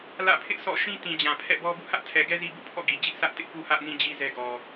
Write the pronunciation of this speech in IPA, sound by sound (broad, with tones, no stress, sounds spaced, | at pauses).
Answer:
l ä̰˦˨ pʰ ɪ˦ ʔ s ɔ̰˦˨ ʃ ĩ˦ t ĩ˨ d͡ʑ ã˨ pʰ ɛ̰˦˨ b ɔ˦ b ṵ˦˨ h ä˦ ʔ tʰ ɛ˨ ɡ ɛ˦ z i˦ b ṵ˦˨ pʰ ɔ̰˦˨ ɡ i˨ d͡ʑ ɪ˦ ʔ s ä˦ ʔ t ɪ˦ ʔ p u˦ h ä˦ ʔ n ĩ˦ d͡ʑ i˦ z ɛ˦ ɡ ɔ˨